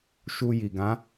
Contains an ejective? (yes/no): no